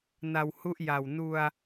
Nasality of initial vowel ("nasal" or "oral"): oral